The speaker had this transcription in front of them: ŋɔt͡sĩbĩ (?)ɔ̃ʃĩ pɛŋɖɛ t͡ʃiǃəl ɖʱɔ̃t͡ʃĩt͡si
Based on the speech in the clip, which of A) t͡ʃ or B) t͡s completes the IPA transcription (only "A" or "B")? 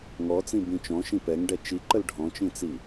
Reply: A